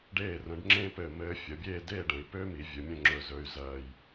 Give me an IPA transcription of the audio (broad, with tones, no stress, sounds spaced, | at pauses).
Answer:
ɖ eː˧˩ r ə̃˩˧ ɖ ŋ͡ǁ ẽ˥ p ɘː˧˩ m ɘː˧ fʲ ə˩˧ bʲ eː˥˧ d eː˥˧ ɖ ə̃˩˧ i̯ p ø˥ m i˩˧ vʲ ɵ˩˧ mʲ ə̃˥˧ ŋ͡ǁ ɵ˧˩ z ɵ˧ y̯ z ɜː˧˩ j